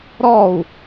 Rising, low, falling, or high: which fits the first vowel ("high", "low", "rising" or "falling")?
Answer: falling